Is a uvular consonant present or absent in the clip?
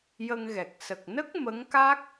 absent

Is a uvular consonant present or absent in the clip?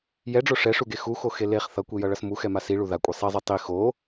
present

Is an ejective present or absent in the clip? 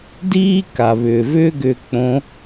absent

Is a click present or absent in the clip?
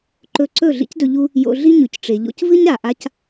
present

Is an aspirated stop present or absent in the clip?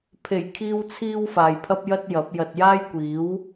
present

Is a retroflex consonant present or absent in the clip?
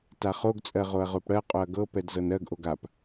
present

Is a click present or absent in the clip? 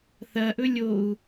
absent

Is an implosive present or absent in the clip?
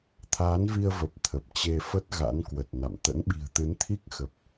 present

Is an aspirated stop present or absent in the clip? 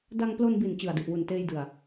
absent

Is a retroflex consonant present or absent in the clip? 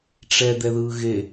present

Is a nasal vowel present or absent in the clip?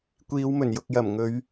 absent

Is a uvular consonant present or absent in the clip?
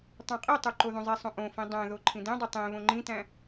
present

